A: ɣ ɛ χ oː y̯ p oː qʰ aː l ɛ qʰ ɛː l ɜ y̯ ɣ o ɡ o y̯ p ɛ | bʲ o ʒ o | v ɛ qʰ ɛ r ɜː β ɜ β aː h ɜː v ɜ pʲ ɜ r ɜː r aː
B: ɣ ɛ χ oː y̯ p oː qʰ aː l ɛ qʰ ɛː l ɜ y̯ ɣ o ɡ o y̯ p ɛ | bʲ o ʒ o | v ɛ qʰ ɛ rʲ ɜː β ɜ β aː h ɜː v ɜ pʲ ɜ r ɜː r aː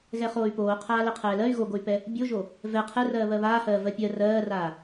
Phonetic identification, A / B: A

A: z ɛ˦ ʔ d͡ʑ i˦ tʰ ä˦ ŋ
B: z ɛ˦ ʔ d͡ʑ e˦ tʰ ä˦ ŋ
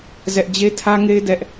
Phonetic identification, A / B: B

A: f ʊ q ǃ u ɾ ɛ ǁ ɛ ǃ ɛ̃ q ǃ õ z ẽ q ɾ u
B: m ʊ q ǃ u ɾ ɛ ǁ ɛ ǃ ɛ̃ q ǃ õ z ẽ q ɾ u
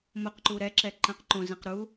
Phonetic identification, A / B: B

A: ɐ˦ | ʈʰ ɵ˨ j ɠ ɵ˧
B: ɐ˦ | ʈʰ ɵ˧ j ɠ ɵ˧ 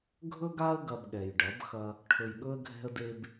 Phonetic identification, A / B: A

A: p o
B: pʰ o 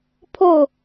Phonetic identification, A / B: B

